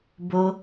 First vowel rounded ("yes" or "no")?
yes